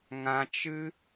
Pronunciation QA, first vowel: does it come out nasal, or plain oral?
nasal